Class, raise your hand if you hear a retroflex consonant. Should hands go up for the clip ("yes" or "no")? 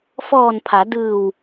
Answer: no